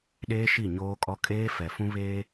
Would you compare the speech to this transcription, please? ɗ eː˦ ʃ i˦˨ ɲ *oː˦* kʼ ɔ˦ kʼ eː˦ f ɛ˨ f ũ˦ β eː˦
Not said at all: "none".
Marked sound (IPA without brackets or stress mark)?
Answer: oː˦